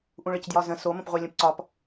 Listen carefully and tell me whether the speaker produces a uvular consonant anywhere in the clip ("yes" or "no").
yes